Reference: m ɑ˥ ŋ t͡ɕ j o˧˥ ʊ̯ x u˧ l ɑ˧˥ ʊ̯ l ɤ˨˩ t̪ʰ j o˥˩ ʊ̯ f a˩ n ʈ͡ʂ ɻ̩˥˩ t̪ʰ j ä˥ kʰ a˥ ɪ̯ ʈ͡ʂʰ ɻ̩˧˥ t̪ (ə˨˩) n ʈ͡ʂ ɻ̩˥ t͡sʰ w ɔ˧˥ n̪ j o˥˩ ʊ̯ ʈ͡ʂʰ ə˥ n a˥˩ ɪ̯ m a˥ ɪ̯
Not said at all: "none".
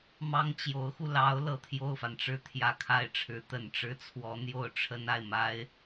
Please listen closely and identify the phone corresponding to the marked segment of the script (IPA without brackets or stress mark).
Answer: ə˨˩